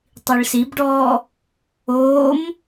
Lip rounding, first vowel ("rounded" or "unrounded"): unrounded